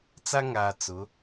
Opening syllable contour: high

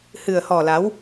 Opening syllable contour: low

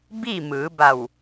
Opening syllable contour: falling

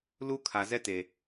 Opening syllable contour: high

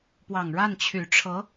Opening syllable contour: low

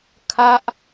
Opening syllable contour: falling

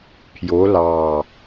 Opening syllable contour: rising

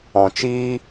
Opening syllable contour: low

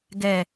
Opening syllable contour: low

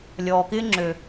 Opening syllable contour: low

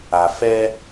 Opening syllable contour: low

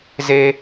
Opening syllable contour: high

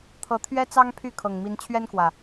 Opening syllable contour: rising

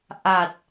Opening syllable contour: low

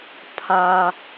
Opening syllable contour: low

